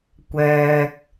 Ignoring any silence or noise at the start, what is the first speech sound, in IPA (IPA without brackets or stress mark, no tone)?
kʷ